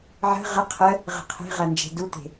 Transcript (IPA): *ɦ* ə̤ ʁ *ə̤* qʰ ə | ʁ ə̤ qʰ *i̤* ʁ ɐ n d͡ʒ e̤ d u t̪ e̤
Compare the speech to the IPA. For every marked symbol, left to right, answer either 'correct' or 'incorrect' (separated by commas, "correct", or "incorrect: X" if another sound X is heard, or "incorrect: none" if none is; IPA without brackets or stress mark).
incorrect: ʕ, incorrect: ə, incorrect: e̤